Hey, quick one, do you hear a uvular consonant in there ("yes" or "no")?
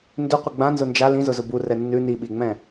yes